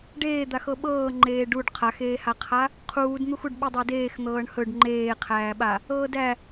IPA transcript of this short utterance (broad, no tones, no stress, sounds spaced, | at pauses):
ɖ eː d̪ a x ɤ ɓ ɤː ŋ͡ǃ eː ɖ u ɖ qʰ a x eː h a qʰ a | qʰ uː d n̪ u x u ɖ ɓ e dˤ æ d eː x n̪ ɤː ɳ h ɵ ɖ ŋ͡ǃ eː qʰ æː ɓ a | ɤː d æ